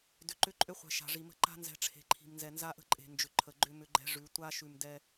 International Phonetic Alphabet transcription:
dʏ˨ǃʏ˦ǃʼʏ˦χʷɛ̤˨ ʃa̤˨ʐi˨mə̤˦ ǃa̤˦nzɛ̤˨ ʈ͡ʂʰe̤˨ǃʰi̤˨mnzɛ˨ nza˦ʔə̤˦ǃʼe̤˨ nd͡ʒʏ˨ǃʰə˨ ɡ͡ǃʏ˦ mʏ˦ɡ͡ǃɛ̤˦ʐʉ˨˦ tʷa˦ ʃʉ˨mdɛ˦

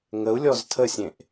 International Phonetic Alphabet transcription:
ŋəu̯lʲɔz tʰəsʲẽʔ

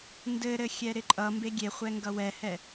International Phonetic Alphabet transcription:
ndɘɾɘxʲɛ ɾɪǃʼʌ mbeɡʲeχʷɛ ŋɡʌwɛhɛ

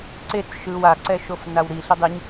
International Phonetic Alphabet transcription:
ǀet͡s ʃɯw aǀɛʃof nawɾi ɬidˤiɲ

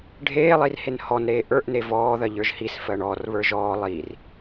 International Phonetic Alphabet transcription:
ɖʱeːlˠirhen hɔnɾeː ʔə˞ʔne vɔːðɜʎə˞ʒ hisfɜɳ ɔːrβə˞ ʒɔː lˠir

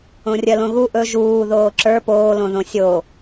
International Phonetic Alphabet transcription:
õrʲɜlõɣu ʔɵ ʒuː ðoːǁə˞ poːlõðõ sʲo

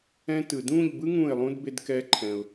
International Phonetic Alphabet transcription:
ɛ̃˦tɯ˨ dũ˦˨ʎbɯ˦ ŋũ˦˨ɪ̯lˠũ˦d be˦dkɛ˦ǃʰɛ̃˨ʊ̯

